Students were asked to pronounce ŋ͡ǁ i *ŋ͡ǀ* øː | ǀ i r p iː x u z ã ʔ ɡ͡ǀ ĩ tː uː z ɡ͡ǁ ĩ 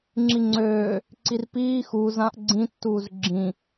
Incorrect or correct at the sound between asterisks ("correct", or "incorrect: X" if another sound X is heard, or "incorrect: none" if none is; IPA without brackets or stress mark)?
correct